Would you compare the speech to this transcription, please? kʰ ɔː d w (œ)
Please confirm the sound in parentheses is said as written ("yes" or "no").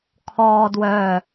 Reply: yes